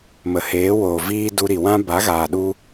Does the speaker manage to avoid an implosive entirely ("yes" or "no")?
no